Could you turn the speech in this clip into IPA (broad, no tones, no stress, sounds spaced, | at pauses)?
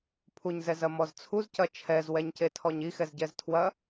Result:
pʰ u ɲ z ɛ z ɐ m ɔ z t͡sʰ u z c ɐ t͡ʃʰ ɛ z w ɛ ɲ c e tʰ ɔ ɲ i x ɛ z ɟ ɛ z tʰ w ɐ